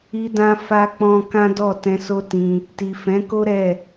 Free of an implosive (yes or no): yes